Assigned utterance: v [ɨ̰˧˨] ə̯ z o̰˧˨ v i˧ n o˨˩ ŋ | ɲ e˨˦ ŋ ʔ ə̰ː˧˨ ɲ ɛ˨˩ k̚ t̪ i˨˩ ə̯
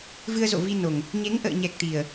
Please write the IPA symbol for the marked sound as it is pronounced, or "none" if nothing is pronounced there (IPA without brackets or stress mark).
ɨ˧